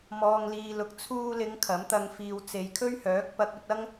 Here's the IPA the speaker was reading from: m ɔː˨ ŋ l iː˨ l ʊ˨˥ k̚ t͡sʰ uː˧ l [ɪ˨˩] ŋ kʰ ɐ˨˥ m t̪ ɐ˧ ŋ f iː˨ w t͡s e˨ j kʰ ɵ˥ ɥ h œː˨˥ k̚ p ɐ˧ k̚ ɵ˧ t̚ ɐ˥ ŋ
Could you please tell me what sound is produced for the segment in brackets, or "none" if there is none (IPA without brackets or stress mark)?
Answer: ɪ˨˧